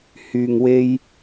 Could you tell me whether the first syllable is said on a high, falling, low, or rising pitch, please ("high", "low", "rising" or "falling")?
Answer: low